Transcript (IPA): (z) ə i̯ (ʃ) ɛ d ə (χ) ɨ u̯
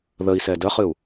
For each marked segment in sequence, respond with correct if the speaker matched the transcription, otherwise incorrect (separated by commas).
incorrect, incorrect, correct